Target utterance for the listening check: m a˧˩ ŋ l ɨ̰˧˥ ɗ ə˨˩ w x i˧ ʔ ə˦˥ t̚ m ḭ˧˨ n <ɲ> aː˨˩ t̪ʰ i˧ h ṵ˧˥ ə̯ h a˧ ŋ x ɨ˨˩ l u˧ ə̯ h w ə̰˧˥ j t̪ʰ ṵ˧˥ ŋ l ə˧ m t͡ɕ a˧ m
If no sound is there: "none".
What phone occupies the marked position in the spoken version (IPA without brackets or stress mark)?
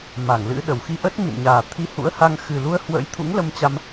ɲ